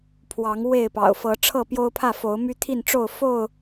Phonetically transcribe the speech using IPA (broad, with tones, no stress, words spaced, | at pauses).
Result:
pʰwɑ˨˦ŋ we˥˨ɪ̯pɑ̰˨˩ʊ̯ fɤ˨˦ ʈ͡ʂʰɤ˥˨pjo˦ʊ̯ pʰä˥˨fo˨˦ʊ̯my˦ t̪ʰi˥˨nʈ͡ʂo˥˨ʊ̯fo˥˨ʊ̯